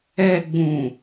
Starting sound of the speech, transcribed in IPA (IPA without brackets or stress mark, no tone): ɛ